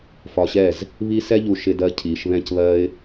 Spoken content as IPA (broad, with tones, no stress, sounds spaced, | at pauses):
f ɒ˧ ɕ ɛ˦˨ z | β i˦ s ɛ˦ ʎ u˧ ʃ ɪ˧ d ɜ˧ cʰ iː˨ ʃ β ɛ̃˧ c β ɜ˧ ɪ̯